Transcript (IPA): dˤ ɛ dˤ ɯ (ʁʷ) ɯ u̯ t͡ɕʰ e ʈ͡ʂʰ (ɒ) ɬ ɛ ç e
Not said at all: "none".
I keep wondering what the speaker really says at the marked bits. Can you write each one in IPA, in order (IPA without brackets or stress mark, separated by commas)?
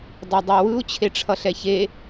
w, ʌ